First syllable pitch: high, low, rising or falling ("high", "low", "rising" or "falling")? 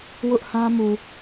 high